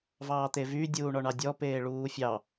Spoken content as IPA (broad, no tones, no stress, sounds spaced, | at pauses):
v ɑː t̪ e v y dʲ uː ɳ ɔ ɳ ɑ dʲ ɔ p eː ɭ uː fʲ ɑ